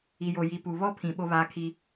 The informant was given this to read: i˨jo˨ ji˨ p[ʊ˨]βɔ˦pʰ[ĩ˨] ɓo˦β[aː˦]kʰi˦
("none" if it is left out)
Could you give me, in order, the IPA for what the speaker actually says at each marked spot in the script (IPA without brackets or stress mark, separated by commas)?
u˨, ĩ˨, aː˦